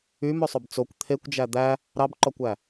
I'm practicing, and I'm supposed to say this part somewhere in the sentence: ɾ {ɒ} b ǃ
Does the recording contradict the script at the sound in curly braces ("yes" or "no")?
yes